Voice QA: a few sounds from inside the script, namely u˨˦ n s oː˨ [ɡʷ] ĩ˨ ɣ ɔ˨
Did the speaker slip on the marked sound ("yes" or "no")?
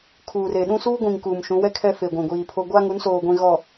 no